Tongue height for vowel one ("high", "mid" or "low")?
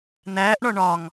low